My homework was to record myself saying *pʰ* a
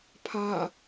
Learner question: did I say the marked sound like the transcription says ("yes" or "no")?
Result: yes